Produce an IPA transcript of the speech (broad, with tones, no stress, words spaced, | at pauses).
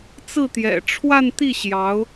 t͡sɹ̩˥˩t̪jɛ̰˨˩ ʈ͡ʂʰwa˥˧nt̪i˥˩ ɕjɑ˧˥ʊ̯